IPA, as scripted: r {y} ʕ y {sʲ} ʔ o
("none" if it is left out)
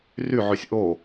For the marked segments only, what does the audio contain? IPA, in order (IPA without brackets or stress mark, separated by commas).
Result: y, sʲ